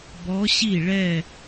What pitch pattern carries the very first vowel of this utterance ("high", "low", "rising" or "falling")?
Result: rising